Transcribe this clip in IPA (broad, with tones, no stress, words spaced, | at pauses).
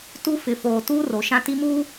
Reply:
tu˦ fɪ˨foː˨ tuː˦ro˨ ʃã˦ti˦muː˦